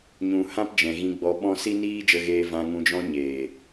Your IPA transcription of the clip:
ɲ ũ˨ h ã˦ p d͡ʒ ɛ̃˨ ɣ ĩ˧ ɡ͡b ɔ˧ ɓ ɔ̃˧ s i˦ n iː˦ d͡ʒ ə˧ ɣ eː˧ v ã˧ ŋ ũ˧ d͡ʒ ɔ̃˦ ɲ eː˨

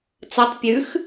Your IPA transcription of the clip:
t͡s ɐ tˤ pʲ ʉ x

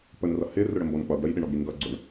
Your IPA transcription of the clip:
p ə n r ʌ h ɪ r ʊ ɽ ə m b ɔ n k͡p ʌ ɡ ɽ ə j ɗ ɪ ɳ ɔ ɡ ɾ i ŋ ɡ ʌ ɡ͡ǀ ʊ ɳ

